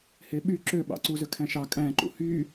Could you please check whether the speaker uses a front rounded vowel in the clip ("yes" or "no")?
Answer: yes